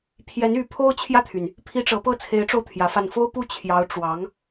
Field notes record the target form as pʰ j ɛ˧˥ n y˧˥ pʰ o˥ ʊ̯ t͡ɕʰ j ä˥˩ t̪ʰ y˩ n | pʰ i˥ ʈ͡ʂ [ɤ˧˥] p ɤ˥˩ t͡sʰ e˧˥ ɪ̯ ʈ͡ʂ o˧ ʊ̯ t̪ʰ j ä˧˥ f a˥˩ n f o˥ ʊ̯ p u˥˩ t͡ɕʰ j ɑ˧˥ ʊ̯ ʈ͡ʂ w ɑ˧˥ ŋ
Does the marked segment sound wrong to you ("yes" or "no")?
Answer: no